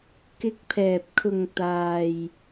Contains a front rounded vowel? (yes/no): no